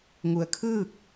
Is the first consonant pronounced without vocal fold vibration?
no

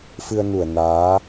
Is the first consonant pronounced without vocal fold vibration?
yes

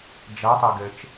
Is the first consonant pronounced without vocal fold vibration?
no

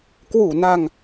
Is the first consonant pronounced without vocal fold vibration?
yes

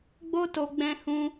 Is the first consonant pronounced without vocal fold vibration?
no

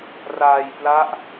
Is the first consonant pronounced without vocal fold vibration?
no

